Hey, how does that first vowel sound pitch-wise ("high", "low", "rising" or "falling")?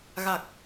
low